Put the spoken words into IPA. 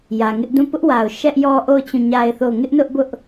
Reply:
jä˨ŋɪ˦ʔdũ˦˨ pʊ˦ʔwa˨ʊ̯ ʃɛ˦ʔjɔ˦ʔo˦˨ʊ̯ t͡ɕũ˦˨ɲa˦ɪ̯θo˦˨ʊ̯ ŋɪ˦ʔnʊ˦ʔbʊ˦ʔ

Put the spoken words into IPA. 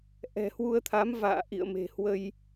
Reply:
ʔɛ̤˨˩hwu˧ə̯t̪ʰa˨˦m va̰ː˧˨ʔḭ˧˨ə̯ me̤˨˩hwə˧j

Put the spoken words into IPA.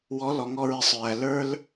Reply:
wɔ˨˦lɔ˨ŋɔ˧ ɹɪ˧sˤ ɹæ˨ lə˞˦l

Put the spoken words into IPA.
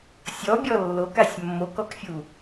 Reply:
sʲɔbʲɔ lːokasʲ mːokɔkfʲu

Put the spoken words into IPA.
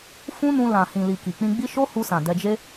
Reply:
fũ˦nũ˧ lã˨ hĩ˨li˨ ki˨k͡pĩ˧ɡ͡bi˦ ʃo˦hu˧sã˨ dɛ˧d͡ʒe˦

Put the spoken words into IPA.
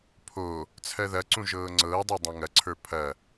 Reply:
pʰo | t͡sʰɜðɐǀũ ʒɤːŋ͡ǀɤːdˤo dˤẽŋɐǀʰə˞ pʰɐ

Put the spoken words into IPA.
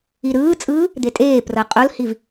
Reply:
iɾɯːt͡sʼɯː | d̪etʼeː prɤqʼolhiv

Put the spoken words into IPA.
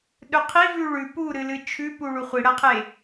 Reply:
ɗɵqʰivʉ ɭʉ puɾɨlɨ t͡ʃʰʉpu ɭuχʷiɽɐqʰe

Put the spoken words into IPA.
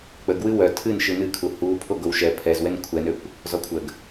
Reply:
k͡pəɡwɨ wœ tʰɨnʃɨ nɨkʰu hu pʰoɡowʃɛ pʰɛzwɛn kʷʰɛnøkʷ | zɔkʷʰəɡ

